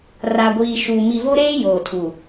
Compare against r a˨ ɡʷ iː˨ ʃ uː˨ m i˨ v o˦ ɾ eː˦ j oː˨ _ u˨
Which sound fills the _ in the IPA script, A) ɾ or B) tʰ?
B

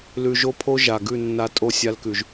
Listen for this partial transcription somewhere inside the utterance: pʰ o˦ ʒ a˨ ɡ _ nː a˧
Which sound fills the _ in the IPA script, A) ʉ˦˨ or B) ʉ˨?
A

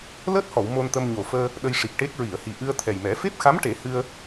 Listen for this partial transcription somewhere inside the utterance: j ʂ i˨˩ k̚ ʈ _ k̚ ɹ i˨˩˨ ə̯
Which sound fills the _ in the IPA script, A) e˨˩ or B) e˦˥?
B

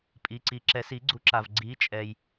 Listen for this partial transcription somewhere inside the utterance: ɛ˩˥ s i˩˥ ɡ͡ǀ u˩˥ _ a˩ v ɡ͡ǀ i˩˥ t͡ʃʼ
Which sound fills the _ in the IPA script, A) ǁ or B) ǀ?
A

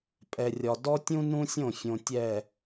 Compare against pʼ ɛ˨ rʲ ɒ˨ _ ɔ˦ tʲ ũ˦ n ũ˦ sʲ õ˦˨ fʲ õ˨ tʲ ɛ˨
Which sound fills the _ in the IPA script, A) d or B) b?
A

